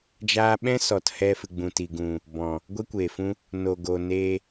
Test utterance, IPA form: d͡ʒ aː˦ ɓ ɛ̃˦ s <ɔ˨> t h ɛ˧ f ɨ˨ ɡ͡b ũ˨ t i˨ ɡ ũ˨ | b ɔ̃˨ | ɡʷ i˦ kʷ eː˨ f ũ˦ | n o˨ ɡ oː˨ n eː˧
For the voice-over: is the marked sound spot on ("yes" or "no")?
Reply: yes